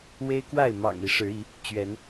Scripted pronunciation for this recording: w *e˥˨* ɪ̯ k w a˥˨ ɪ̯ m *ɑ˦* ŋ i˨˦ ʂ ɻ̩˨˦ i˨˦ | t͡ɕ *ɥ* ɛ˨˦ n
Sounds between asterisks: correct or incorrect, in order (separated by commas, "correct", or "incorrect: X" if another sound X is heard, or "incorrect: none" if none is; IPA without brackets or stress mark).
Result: incorrect: e˦, incorrect: ɑ̰˨˩, correct